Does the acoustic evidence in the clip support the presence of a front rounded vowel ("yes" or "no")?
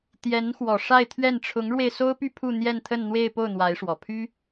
yes